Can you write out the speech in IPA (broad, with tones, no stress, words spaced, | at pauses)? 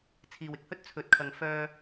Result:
t͡sʰiː˨wɪ˧k̚hɵ˥t̚ t͡sʰɵ˨˥t̚kʰɐ˨ŋ fœː˧